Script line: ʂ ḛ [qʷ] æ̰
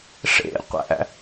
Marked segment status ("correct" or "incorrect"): correct